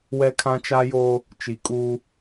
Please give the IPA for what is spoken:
w ɛ˦ kʰ ã˦ t͡ʃ a˦ j oː˦ | t͡ʃ i˨ kʼ uː˦

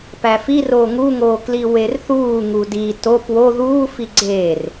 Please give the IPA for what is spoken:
p æ f i r oː ŋ u ŋ oː k l i w e r θ uː ŋ u d i t o p w o ð uː f i ɡ͡ǀ e r

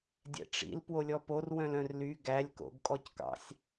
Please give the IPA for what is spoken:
dʲ ɛ̰ ʈ͡ʂ ḭ l p w o lʲ ɔ p o r w œ̃ l œ̃ r l y ɡ æ lʲ k o̰ ɡ kʼ ɔ c k ɑ̰ sʲ

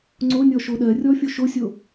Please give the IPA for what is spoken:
ŋ͡ǀ o nʲ ɔ ʃ o ɗ ɜ rʲ ɔ fʲ o ʃ o sʲ o

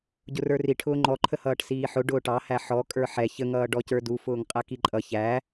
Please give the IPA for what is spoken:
ɟ ʊ r ə˞ r i ʈʰ ʊː ŋ͡ǃ ɔ ǃʰ ə h ʌː ʈ s iː ħ ʊ ɖ ʊː ʈ ɑ h æ ħ ɔ kʼ ə˞ ħ ɛ ç ə ŋ ʌː ɖ ɔ c ə˞ d u f ʊː ŋ qʼ æ k i ǃʼ ʌ ç æ

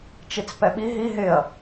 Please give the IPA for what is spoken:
t͡ʃ i t͡s p ɛ ɓ i ɦ i ɦ ɪ ɐ̯

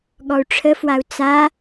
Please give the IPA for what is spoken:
ɠ ɔ u̯ ʈ͡ʂʰ ə f w a u̯ t͡s a

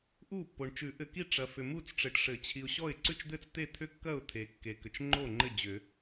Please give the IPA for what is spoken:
ʔ u˥˩ pː o˨ ɳ t͡ʃ ʉ˨˩˦ ʔ ɘ˨ k i˥˩ ʈ͡ʂ ɐ˨ f ʏ˨ m u˥˩ t͡s ʈ͡ʂ ɘ˨ ʈ ʂ ɘ˨˩˦ t͡ɕʰ i˨ ʊ̯ ɕ ɔ˥˩ ɪ̯ ǀ ʉ˥˩ t͡ʃ d̪ ɘ˥˩ t͡s t̪ e˥˩ t̪ʰ ʏ˥˩ kː ɐ˥˩ ʊ̯ t̪ʰ e˨ kː e˨ k ʏ˨ t͡ʃ ŋ͡ǃ o˥˩ ŋ͡ǃ ɘ˥˩ d͡ʑ ʏ˨˩˦

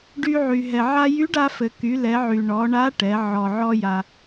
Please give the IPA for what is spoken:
ɖ y˧ ʕ y˩ ɦ ɛ˩ ʕ a˧ j y˧˥ ɖ a˧ f ɘ˩ k y˩˧ l ɛ˩˧ ʕ y˩ ɳ ɔ˩˧ ɳ a˧˥ ʈ ɛ˩˧ ʕ ɔ˩ ʕ ɔ˧ j a˩

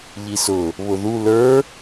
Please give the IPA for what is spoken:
ʎ i s ʊ | β ʊ ð u l ə˞

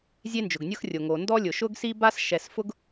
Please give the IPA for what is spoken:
zʲ e˥ n d͡ʒ ʊ˩ ɡ nʲ ʊ˥ x rʲ o˩ ŋ o˩ n d ɔ˥ lʲ ʊ˩ ʃ ʊ˥ ɡ s i˥ b a˥ s ʃ ɛ˩ s f ʊ˥ ɡ

